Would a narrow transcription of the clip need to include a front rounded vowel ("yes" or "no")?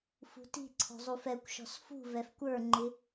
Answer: no